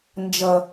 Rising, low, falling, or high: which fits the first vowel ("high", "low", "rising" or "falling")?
low